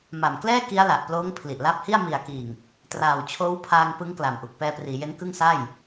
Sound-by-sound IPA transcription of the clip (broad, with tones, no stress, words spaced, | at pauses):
ma˨˩mklɛː˥˩ ki˦˥a̯la˨˩ʔploː˦˥ŋ pʰli˨˩ʔla˦˥p̚hi˥˩a̯ mi˨˩a̯kiː˨˩ŋ | traː˨˩wt͡ɕʰoː˦˥wpʰaː˧ŋ pɯ˦˥ŋkla˨˩mʔu˨˩k̚ pɛː˧priː˩˦je˦˥n kɯ˥˩ŋsa˥˩j